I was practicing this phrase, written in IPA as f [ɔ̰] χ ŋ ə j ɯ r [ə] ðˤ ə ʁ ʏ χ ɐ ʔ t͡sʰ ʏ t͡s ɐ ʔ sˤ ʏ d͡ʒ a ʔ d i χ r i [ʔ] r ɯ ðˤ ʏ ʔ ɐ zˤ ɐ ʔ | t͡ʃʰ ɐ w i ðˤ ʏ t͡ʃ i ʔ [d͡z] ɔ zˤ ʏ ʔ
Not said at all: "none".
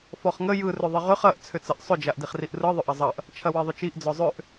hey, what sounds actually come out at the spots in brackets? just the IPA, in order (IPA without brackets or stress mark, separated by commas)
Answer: ɔ, ʏ, ʔ, d͡z